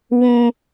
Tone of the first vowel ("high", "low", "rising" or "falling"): low